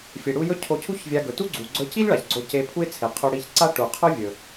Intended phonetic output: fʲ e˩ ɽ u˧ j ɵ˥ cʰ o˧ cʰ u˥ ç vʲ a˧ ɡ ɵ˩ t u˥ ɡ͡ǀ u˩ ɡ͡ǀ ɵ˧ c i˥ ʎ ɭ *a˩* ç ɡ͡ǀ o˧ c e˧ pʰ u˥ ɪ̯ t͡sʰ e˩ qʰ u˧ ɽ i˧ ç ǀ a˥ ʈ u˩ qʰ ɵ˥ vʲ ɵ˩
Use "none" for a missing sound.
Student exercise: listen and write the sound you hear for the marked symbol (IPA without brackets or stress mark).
a˩